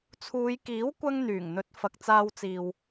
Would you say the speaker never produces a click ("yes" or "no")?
yes